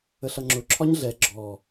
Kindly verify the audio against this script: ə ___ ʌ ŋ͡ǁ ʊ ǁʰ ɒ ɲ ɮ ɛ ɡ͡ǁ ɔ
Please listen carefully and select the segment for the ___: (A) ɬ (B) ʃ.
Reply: A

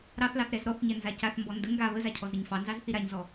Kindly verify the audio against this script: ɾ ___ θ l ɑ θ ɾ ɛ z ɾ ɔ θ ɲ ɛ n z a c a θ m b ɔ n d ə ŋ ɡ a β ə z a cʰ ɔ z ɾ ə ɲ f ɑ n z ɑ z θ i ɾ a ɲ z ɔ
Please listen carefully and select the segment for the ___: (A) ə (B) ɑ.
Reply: B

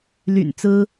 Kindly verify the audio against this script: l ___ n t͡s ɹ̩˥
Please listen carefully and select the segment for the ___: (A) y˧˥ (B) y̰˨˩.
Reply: B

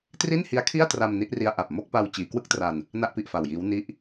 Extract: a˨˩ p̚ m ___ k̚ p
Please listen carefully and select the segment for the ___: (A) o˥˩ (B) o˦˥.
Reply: A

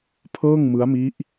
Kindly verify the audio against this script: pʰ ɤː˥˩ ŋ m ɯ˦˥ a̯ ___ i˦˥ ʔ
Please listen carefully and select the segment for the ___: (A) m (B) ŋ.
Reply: A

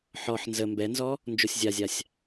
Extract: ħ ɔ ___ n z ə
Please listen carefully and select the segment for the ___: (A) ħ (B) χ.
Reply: A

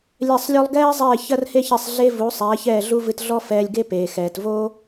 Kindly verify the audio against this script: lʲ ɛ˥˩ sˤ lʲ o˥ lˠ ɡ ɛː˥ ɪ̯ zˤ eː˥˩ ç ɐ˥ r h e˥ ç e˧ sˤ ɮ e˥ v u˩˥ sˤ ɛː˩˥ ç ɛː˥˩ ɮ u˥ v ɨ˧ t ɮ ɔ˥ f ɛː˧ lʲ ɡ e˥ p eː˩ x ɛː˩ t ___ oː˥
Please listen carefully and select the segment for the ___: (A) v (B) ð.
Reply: A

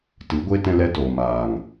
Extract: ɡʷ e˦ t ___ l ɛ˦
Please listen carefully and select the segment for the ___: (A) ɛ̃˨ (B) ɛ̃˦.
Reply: B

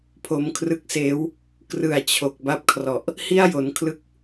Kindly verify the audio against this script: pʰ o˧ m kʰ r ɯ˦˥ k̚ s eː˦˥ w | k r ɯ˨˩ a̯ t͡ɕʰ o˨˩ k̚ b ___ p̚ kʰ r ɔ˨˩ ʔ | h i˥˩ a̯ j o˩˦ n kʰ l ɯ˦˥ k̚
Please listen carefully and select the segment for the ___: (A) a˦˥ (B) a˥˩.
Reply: A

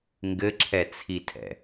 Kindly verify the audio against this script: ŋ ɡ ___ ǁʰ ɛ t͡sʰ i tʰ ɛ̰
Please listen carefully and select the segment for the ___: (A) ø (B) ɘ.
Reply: B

